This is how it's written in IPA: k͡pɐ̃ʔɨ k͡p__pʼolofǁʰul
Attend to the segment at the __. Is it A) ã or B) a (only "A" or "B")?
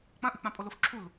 A